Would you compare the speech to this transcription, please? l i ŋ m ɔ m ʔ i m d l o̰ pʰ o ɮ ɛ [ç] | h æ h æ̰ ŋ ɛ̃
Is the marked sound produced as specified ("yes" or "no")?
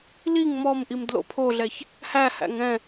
yes